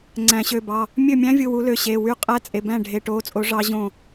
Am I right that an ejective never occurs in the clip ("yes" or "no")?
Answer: no